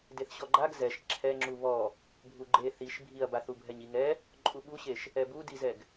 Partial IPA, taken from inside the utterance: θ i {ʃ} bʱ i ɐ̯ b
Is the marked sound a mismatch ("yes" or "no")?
no